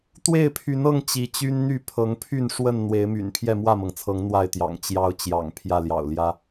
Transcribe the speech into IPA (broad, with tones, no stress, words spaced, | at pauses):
t̪we˥˨ɪ̯pʰy˨˦nɤ˥˨ŋ t͡ɕi˨˦t͡ɕy˦nn̪y˥˨ pʰɤ˨˦ŋpʰy˥˨n ʂwə˥˨n n̪we˨˦ɪ̯my̰˨˩n pʰjɛ˥˨mwä˥˨mɤ˩ŋt͡sʰɤ˨˦ŋ n̪wa˥˨ɪ̯t̪jɑ̰˨˩ŋ t͡ɕjɑ˨˦ʊ̯ t͡ɕjɑ̰˨˩ŋ pʰjä˥˨ljɑ̰˨˩ʊ̯ljä˦